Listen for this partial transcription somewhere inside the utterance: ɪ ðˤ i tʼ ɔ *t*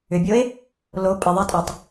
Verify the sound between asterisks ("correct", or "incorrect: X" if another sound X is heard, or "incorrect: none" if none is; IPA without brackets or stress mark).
incorrect: tˤ